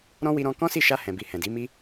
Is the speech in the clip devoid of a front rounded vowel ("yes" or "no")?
yes